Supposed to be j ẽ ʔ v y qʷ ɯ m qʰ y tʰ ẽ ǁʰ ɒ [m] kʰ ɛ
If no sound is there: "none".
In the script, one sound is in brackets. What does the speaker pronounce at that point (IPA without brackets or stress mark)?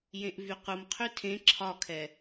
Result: none